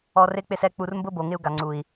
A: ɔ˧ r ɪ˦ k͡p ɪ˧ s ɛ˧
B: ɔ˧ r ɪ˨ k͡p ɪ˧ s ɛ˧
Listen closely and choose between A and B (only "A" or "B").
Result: A